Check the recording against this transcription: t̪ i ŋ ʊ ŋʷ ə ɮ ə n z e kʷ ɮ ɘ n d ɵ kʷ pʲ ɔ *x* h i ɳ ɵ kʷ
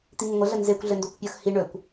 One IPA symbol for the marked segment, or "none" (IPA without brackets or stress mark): x